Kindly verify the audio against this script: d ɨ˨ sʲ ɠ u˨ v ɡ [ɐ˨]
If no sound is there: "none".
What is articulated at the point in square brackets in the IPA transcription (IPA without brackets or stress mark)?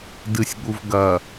ɐ˨